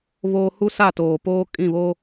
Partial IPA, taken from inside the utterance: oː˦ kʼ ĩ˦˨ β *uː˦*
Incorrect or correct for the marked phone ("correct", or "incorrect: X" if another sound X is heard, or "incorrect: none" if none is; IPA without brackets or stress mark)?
incorrect: oː˦